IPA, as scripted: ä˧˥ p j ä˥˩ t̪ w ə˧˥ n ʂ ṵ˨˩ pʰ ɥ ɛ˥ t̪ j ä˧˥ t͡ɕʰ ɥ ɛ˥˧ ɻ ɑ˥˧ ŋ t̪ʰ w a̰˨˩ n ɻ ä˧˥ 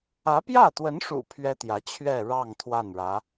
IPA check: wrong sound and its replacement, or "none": a̰˨˩ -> a˥˩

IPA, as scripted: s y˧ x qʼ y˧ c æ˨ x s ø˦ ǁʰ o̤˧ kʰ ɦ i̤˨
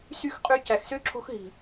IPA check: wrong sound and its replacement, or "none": kʰ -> x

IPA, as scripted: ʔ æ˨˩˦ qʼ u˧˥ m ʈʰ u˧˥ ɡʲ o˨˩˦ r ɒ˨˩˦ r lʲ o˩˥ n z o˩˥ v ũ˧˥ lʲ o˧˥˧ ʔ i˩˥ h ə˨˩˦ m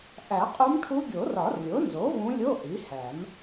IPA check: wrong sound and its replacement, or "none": ə˨˩˦ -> æ˨˩˦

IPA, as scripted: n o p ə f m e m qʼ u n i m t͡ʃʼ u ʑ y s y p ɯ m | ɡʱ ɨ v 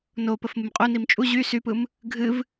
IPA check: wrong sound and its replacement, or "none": e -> ɨ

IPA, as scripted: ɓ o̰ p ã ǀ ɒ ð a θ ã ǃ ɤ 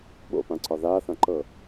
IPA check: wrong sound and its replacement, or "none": none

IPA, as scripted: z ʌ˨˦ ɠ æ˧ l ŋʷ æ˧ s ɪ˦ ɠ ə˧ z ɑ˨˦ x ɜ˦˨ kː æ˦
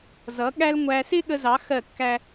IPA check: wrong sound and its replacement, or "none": none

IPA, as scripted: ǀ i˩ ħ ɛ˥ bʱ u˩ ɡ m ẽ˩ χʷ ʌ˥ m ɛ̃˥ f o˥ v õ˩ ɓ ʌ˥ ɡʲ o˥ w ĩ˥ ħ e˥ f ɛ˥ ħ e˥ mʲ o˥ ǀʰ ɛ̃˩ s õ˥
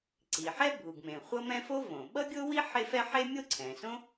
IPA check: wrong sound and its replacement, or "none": ĩ˥ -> i˥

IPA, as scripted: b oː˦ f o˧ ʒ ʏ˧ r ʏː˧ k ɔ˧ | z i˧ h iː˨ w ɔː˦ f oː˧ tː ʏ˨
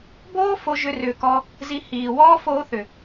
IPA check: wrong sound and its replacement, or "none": tː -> θ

